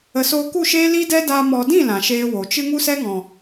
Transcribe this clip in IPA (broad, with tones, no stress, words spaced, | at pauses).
ə˨soː˧ku˦˨ʃeː˦ li˦dɛ˦daː˧ mɔ˨dĩ˦˨ lã˨ʃeː˦wo˨ t͡ʃɨ˧ ŋu˦sɛ˦ŋɔ̃˨